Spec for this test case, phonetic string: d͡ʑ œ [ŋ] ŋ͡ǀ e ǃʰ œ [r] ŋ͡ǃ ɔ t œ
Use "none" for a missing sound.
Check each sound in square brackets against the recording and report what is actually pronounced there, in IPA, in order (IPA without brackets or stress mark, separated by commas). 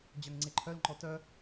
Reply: ŋ, l